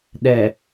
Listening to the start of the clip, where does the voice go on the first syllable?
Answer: low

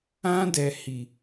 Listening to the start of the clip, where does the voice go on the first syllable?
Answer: high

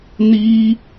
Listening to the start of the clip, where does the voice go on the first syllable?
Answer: high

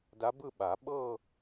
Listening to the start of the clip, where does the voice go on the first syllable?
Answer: rising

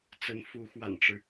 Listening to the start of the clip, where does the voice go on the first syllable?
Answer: rising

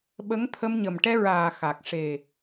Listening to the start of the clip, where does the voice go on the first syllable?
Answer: rising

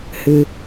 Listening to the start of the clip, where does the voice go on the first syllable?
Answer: low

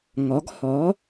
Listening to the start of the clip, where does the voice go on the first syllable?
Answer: rising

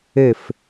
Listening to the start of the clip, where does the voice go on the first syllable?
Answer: falling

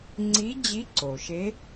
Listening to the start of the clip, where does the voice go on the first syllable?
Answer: rising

